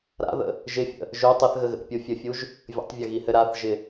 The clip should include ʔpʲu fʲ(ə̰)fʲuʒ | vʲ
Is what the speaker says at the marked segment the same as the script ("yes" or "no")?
no